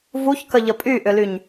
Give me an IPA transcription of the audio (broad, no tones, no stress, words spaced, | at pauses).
vuçkə ʎəpʼyʔʏlyɲ